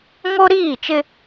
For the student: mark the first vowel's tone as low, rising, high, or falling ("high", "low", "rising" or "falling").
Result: high